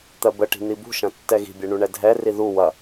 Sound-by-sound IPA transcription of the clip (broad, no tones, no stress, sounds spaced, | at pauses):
t̪ ɜ b ə ʈ i̤ n̪ i b ṳ ʃ ɐ̃ tː ɛ ɣ i̤ bʲ ɛ ɳ u ɳ ɛ dʱ ɛ r i ð u w ɐ